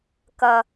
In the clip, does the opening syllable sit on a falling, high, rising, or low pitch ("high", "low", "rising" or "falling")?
high